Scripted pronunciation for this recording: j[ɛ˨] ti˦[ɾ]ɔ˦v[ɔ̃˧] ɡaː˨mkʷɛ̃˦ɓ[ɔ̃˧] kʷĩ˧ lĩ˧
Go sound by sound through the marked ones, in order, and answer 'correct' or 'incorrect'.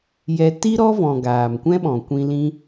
incorrect: ɛ˧, correct, incorrect: ɔ̃˨, incorrect: ɔ̃˨

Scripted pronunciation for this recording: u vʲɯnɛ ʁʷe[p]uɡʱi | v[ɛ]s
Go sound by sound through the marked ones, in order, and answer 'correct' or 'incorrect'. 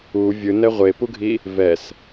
correct, correct

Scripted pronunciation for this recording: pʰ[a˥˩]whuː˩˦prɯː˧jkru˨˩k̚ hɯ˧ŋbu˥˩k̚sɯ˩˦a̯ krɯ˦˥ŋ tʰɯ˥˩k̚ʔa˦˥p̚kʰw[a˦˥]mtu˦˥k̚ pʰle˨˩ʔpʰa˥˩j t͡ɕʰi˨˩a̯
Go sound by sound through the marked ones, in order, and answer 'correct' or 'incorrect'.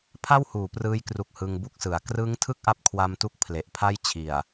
correct, incorrect: a˧

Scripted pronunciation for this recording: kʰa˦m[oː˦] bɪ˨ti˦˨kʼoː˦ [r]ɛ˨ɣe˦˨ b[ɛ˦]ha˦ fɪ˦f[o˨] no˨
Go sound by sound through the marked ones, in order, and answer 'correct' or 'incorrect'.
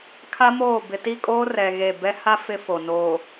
incorrect: oː˦˨, correct, correct, correct

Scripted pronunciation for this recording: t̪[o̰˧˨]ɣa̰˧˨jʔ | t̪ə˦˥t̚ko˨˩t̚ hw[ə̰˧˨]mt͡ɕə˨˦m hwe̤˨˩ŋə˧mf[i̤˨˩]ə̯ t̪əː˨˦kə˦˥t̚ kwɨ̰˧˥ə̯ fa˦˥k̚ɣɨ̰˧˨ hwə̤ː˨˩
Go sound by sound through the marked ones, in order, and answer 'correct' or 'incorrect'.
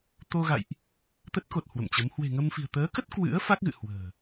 incorrect: o˧, correct, correct

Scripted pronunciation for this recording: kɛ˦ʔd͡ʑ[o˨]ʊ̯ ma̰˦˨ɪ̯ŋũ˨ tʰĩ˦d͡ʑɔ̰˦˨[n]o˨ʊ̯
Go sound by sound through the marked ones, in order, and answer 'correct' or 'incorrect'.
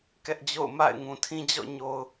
incorrect: o̰˦˨, incorrect: ɲ

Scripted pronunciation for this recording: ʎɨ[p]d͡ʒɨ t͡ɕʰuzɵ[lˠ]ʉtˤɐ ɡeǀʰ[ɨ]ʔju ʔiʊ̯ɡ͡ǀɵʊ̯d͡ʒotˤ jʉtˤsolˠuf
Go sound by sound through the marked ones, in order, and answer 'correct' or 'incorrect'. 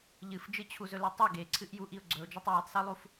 incorrect: f, incorrect: l, correct

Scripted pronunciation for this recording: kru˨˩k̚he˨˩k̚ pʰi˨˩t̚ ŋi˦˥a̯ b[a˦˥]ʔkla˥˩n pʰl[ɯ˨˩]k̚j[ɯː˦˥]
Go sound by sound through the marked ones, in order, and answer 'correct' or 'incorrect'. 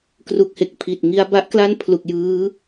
correct, incorrect: u˨˩, correct

